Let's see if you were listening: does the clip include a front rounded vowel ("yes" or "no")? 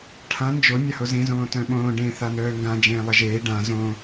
yes